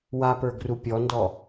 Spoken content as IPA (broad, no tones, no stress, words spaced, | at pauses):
wapə˞ɡru pʲɔndɔ